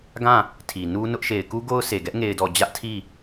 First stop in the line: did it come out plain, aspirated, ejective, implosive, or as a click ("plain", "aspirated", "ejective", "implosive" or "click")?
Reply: plain